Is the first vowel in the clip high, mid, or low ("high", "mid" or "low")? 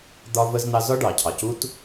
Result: low